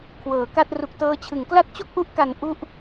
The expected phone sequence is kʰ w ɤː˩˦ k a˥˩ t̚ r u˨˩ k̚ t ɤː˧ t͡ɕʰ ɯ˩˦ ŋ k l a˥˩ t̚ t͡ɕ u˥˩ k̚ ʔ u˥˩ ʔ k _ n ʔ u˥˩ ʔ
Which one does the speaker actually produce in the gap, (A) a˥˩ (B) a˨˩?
B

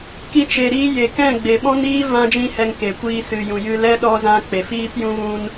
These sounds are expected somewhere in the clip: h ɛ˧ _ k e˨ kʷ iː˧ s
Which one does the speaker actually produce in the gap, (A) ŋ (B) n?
A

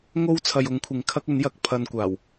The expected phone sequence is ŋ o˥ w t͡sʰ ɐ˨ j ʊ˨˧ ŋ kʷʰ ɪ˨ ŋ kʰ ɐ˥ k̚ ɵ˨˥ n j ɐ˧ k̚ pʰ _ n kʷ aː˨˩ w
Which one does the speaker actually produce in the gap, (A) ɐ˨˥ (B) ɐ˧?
B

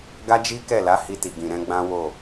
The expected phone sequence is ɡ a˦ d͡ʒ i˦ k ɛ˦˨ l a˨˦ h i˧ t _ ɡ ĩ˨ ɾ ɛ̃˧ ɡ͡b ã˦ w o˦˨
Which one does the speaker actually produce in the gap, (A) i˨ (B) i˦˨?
A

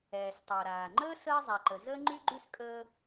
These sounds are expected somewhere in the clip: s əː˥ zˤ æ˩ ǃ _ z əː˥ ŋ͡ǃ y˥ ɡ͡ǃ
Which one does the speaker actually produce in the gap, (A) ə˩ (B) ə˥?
A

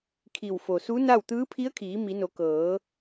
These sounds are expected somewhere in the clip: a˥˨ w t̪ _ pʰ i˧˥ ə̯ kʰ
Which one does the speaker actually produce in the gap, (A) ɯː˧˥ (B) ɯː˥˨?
A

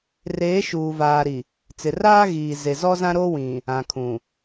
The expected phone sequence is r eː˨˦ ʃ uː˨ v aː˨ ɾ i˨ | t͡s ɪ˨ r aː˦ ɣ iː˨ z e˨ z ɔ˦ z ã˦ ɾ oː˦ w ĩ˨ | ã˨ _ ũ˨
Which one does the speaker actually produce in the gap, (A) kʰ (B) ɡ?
A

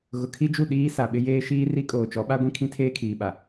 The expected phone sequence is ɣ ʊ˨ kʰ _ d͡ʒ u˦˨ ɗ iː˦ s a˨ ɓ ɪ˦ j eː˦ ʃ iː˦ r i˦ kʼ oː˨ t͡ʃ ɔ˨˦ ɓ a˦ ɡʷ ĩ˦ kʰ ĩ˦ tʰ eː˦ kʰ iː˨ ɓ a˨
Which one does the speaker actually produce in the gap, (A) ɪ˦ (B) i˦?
B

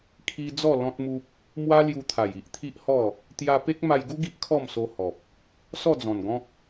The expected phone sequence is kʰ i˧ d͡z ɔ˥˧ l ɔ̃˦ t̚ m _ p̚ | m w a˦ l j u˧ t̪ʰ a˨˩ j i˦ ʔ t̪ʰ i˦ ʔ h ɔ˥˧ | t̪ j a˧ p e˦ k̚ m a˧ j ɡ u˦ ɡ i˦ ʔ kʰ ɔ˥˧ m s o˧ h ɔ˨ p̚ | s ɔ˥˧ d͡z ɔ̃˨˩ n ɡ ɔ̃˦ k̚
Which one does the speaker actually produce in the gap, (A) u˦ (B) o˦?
A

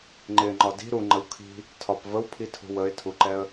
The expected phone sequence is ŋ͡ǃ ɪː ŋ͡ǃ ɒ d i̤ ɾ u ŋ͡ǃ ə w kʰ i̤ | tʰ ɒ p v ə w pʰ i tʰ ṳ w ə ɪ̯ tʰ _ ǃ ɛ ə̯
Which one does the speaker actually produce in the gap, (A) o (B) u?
B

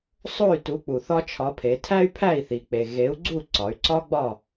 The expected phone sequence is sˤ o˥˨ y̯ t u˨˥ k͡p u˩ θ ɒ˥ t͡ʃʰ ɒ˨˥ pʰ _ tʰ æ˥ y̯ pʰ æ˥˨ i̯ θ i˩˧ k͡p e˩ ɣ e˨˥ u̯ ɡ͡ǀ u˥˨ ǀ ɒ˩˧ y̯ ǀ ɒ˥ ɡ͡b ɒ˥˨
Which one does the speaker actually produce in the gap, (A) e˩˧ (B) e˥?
A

